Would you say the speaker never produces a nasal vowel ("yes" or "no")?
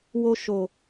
yes